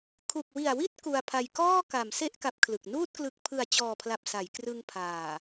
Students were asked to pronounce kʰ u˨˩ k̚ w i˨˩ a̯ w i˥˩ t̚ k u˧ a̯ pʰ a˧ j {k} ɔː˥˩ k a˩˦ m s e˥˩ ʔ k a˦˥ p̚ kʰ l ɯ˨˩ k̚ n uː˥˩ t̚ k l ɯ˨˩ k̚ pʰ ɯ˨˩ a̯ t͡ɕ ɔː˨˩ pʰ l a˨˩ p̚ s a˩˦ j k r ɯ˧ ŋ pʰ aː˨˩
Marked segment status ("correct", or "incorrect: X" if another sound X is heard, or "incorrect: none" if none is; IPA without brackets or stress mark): correct